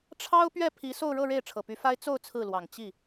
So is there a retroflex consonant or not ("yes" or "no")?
yes